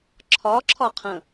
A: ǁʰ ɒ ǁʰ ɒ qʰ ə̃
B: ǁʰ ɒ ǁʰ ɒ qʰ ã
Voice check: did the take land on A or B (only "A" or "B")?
A